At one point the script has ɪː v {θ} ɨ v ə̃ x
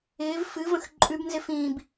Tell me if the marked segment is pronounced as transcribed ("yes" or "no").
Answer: no